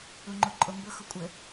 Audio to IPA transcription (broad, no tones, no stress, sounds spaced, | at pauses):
u ŋ͡ǃ u ǃʼ ʊ m b ʊ x ʊ kʷʼ ɘ